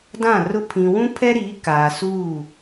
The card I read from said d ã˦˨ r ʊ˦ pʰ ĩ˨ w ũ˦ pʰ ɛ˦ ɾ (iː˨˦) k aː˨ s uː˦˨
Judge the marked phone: correct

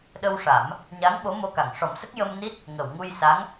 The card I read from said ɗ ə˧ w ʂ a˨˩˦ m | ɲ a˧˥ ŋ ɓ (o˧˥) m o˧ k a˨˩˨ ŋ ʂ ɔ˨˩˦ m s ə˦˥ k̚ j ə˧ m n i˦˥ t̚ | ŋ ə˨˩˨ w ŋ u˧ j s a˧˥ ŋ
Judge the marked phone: correct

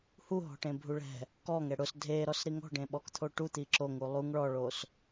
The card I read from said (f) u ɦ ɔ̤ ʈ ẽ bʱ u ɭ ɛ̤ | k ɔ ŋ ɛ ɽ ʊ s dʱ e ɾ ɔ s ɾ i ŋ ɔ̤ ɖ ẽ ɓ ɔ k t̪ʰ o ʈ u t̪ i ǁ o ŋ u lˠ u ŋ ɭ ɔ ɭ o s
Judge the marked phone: incorrect: h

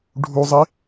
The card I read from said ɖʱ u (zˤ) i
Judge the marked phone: correct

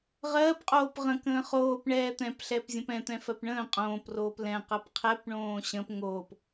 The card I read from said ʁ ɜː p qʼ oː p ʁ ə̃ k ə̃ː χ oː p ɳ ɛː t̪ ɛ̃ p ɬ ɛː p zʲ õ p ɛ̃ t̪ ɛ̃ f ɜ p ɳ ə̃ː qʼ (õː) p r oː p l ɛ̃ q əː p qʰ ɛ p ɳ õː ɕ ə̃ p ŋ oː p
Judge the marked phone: correct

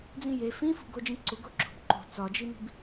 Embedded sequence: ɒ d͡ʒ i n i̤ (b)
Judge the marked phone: correct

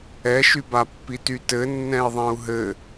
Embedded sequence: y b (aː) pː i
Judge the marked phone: incorrect: a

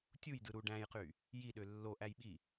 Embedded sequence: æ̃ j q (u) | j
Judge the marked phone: incorrect: y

